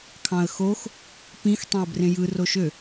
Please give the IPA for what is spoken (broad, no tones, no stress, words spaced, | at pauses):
kʰɑ̃ə̯xox | pĩx tˤẽə̯brẽjɯ roʃø